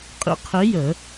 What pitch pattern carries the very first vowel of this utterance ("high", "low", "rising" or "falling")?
falling